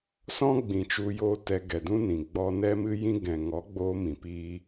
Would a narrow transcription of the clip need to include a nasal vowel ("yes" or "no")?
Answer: yes